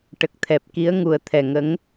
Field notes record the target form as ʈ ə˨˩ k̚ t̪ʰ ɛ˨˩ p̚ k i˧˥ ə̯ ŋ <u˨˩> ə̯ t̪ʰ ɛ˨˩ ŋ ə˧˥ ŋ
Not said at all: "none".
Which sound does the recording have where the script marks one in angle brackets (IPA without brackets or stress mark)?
u˨˩